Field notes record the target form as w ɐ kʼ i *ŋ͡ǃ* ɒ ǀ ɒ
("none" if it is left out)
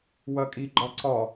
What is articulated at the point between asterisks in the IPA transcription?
ɡ͡ǃ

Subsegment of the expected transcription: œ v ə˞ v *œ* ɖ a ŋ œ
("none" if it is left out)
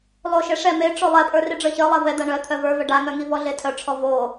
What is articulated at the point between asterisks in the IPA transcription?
œ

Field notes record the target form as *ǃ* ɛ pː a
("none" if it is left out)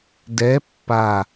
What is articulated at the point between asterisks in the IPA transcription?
d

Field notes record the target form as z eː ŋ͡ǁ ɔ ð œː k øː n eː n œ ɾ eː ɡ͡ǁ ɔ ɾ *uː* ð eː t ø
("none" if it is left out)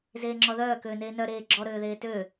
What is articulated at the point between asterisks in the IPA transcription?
øː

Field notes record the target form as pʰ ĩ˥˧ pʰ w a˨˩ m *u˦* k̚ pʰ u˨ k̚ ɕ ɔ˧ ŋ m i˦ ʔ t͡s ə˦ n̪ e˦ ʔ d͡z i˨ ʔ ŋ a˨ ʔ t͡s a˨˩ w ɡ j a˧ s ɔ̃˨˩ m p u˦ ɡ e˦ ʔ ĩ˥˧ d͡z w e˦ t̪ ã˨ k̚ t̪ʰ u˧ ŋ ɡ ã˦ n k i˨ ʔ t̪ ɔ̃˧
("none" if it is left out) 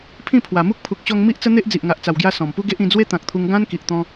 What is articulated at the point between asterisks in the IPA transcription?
u˦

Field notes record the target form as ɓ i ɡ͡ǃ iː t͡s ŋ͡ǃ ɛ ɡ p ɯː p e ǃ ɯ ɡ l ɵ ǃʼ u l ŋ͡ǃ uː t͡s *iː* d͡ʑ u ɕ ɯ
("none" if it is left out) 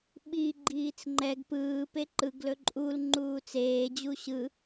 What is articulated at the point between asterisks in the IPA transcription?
eː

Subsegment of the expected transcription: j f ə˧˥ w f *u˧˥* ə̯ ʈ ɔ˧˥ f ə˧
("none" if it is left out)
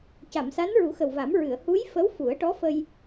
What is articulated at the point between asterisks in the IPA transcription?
u˨˩˦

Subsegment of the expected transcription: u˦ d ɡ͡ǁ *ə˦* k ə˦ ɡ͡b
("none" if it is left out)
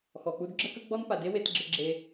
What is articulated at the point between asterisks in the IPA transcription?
ə˦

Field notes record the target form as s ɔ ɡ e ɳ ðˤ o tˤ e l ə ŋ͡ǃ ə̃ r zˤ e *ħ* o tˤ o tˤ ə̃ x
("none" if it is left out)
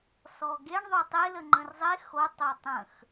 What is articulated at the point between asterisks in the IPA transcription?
x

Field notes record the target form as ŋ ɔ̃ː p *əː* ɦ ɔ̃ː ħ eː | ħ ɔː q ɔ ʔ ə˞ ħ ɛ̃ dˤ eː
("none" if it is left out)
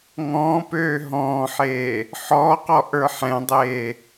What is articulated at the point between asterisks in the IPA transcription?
øː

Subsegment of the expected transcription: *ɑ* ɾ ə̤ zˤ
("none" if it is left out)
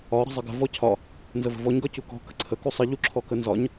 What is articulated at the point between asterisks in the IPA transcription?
ɒ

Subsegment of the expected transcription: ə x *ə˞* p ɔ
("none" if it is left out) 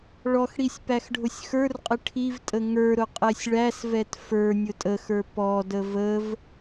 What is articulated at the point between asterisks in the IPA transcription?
ə˞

